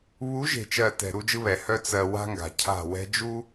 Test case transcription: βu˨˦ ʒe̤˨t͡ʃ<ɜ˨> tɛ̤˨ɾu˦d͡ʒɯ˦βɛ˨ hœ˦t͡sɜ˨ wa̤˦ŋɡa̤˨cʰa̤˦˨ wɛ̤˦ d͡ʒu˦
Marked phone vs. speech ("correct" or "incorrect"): correct